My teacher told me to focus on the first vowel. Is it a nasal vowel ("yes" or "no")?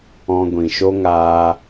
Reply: yes